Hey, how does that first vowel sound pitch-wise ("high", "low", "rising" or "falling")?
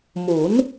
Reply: rising